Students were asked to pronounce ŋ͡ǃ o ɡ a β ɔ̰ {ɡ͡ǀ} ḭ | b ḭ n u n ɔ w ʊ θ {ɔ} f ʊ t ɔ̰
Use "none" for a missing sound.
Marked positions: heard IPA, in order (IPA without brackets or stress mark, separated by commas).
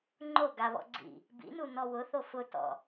ɡ͡ǀ, o